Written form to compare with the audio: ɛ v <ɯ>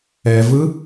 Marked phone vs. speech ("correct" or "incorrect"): correct